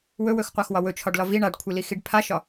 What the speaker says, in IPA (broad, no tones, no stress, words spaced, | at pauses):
wɵwɵxqʷaxwɒ wɵt͡ʃʰɒɖlɒ vi ɳaɖkʷʰilixiɖ pʰaʃɒ